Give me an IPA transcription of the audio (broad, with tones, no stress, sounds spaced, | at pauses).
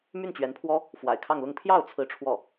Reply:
m y˥˩ n t͡ɕ ɥ ɛ˧˥ n pʰ w ɔ˥ | f w a̰˨˩ ɪ̯ kʰ ɑ˥˧ ŋ l ʊ˥˧ ŋ pʰ j ɑ˥˩ ʊ̯ t͡sʰ ɹ̩˥ ʈ͡ʂʰ w ɔ˥˩